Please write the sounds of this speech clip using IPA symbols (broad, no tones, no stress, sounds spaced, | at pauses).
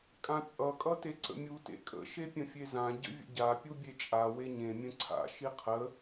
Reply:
kʼ ã t͡sʼ ʌ kʼ ʌ t e ǀ ə̰ mʲ u t ḛ kʼ ə̰ ʃ e pʲ ə̃ fʲ e z ã ɟ ə̰ vʲ ə̰ ɟ a pʲ u bʲ e t͡ʃʼ a w e ɲ ẽ mʲ ə̃ ǀʰ a̰ ʃ i qʰ ə